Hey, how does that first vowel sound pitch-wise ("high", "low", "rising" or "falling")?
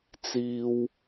high